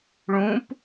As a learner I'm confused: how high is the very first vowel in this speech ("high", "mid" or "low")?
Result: high